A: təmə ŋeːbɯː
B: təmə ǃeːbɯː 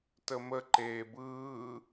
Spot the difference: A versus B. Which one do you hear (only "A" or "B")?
B